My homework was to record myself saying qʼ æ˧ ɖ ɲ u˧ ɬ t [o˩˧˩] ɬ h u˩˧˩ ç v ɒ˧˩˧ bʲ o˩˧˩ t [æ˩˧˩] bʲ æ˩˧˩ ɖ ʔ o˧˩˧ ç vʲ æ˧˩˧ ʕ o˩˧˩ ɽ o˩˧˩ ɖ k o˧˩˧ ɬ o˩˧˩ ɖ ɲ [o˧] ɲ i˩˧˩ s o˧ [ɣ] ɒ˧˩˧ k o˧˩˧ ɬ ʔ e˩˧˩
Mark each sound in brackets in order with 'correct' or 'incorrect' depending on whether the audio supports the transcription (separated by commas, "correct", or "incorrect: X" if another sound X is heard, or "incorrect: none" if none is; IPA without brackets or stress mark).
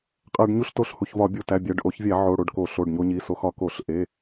correct, correct, correct, incorrect: x